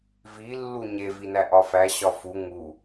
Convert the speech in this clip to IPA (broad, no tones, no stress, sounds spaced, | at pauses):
v i lː u ɲ e v i n æ ʔ ɒ f æ ɕ ɒ f u ŋ u